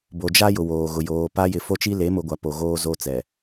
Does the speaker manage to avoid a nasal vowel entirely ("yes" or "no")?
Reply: yes